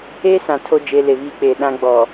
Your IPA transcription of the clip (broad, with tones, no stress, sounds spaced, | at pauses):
e˦ s ã˨ tʰ o˦ d͡ʒ e˨˦ l e˨ β iː˦ k͡p eː˨ ɗ ã˦ ɡ͡b ɔ˨